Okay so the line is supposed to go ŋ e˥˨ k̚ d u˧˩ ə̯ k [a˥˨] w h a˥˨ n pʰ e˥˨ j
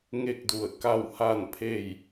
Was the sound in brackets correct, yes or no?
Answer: yes